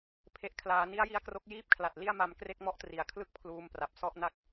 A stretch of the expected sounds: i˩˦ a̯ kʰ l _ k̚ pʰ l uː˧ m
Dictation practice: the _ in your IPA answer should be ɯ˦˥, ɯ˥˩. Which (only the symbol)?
ɯ˥˩